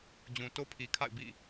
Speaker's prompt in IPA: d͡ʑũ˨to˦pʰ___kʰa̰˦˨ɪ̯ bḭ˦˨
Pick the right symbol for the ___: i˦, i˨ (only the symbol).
i˨